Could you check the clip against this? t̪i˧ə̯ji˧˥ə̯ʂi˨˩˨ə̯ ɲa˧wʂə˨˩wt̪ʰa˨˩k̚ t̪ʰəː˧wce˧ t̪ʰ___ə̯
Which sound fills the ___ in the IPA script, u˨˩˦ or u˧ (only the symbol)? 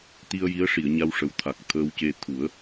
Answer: u˨˩˦